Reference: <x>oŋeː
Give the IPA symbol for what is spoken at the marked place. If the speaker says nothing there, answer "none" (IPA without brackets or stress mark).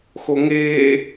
x